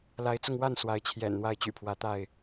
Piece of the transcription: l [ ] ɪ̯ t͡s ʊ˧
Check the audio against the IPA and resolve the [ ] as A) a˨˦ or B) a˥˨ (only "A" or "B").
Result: A